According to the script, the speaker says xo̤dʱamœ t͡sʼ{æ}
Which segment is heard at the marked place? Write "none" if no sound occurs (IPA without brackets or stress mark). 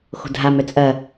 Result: ɐ